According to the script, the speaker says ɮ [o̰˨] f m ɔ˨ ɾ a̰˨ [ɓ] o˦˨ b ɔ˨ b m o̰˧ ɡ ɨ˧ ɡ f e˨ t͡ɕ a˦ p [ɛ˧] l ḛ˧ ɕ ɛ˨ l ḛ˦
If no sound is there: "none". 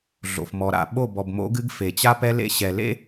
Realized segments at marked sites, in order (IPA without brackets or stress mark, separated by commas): o̰˨, ɓ, ɛ˧